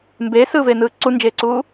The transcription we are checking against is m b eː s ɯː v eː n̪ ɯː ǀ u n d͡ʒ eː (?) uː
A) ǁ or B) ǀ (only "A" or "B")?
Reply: B